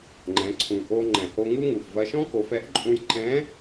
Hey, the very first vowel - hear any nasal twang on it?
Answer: yes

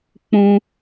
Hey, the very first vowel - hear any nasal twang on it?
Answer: yes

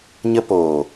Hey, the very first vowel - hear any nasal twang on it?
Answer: no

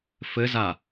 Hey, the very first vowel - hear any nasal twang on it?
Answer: no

